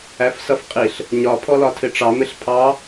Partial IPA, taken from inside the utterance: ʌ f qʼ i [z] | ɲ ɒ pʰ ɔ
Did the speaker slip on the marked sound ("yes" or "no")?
yes